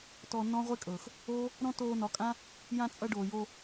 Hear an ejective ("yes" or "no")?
yes